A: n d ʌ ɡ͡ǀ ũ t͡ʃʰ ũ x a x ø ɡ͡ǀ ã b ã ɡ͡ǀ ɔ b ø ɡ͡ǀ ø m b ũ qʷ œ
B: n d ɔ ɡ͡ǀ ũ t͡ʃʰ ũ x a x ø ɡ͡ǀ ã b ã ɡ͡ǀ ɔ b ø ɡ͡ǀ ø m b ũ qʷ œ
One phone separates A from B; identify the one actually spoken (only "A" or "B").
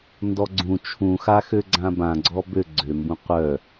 B